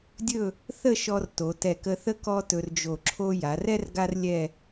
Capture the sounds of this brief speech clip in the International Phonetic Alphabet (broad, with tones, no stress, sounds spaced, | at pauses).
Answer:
dʲ ɵ˥˧ | θ ə˥˧ ʃ ɔ˧ r t o˩˧ t ɛ˧˩ k ə˧ θ ə˥ k ɔ˥ t ɵ˧ r d͡ʒ o˧˩ ǁʰ o˥ j a˩˧ r ɛ˥ r ɡ a˥ r lʲ ɛ˥˧